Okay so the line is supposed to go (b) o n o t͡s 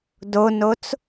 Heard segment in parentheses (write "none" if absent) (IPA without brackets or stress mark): d